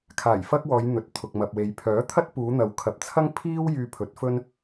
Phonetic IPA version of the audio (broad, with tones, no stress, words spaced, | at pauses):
kʰaː˨˩jfɐ˥k̚wɔː˨˧j n̪ɵ˨t̚t̪ʰʊ˨k̚mɐ˨p̚we˨˧j pʰœː˨˥t̪ʰɐ˥t̚puː˨˧n̪ɐ˨˧w kʰɐ˨˥p̚t͡sʰɐ˥ŋ pʰiː˥w jyː˧pʰɵ˨˥t̚fɵ˥n